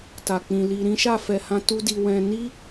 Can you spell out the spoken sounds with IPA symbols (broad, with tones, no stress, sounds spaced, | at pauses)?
t a˨ k͡p ĩ˨ l i˨ ɾ ĩ˨˦ ʃ a˦˨ f ɛ˨ h ã˧ t u˧ d i˨ w ɛ̃˧ n i˦